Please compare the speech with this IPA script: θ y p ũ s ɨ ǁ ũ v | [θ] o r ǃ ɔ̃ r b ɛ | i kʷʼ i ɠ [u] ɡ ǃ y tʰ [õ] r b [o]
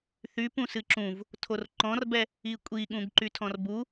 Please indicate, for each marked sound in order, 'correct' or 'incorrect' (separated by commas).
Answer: incorrect, incorrect, incorrect, incorrect